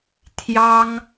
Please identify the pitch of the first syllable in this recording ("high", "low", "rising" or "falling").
high